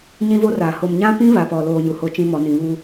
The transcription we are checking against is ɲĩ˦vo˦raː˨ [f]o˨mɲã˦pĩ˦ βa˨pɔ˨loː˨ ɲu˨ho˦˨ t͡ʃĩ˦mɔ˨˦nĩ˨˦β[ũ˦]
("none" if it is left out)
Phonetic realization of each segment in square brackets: h, u˦

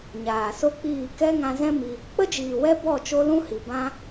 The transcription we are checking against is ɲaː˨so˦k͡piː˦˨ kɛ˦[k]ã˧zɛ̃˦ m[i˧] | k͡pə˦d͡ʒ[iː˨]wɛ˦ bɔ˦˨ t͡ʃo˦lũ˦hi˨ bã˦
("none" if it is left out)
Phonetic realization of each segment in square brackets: ŋ, i˧, iː˨

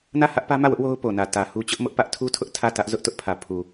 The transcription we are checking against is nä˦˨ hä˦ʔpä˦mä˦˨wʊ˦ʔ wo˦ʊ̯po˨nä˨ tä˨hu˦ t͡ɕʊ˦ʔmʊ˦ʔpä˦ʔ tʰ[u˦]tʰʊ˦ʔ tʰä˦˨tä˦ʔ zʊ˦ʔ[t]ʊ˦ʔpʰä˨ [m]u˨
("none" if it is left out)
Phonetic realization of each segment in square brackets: u˦, t, pʰ

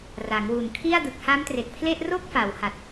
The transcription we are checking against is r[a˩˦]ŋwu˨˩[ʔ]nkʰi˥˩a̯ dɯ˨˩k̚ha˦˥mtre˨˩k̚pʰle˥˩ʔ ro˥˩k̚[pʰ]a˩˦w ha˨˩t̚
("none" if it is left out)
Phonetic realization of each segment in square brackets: a˩˦, none, f

